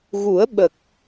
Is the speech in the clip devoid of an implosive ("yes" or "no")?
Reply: no